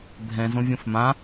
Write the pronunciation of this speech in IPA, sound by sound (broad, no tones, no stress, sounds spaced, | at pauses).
bʱ ɛ̃ z õ vʲ õ f m ã